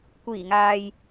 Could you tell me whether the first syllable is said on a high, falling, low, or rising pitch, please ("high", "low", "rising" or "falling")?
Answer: low